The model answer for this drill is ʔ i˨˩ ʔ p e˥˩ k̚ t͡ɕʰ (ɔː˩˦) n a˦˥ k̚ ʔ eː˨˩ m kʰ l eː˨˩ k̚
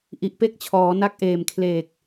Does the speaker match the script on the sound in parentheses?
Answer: yes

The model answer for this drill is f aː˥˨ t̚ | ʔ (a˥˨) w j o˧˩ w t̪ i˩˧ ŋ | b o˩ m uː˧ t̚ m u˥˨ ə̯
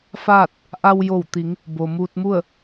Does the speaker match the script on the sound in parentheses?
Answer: no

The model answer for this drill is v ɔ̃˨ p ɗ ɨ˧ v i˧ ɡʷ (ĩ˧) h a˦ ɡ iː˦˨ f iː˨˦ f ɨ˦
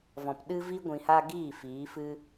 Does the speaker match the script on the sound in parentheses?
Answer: yes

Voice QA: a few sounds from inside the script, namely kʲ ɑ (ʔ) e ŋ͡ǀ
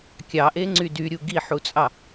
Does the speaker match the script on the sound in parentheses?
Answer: yes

